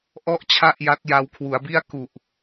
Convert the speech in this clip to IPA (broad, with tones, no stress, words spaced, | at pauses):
ʔɔ˥˩ʔt͡ɕʰa˥˩ʔ ja˦˥t̚ja˧w kʰwu˩˦a̯bi˥˩a̯ ku˨˩ʔ